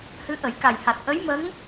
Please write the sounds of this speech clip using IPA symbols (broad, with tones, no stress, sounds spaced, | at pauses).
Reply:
h ɨ˧˥ ʔ ə˨˩˦ j k a˨˩ j h a˨˩ t̚ ʔ ə˧˥ j m ə˧˥ ŋ